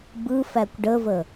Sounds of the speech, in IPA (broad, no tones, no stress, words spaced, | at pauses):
bɯ fækʷɖəvə